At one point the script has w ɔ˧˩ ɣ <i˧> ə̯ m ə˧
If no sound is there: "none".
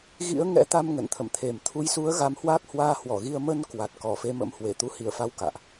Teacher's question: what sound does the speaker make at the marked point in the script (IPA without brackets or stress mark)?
i˧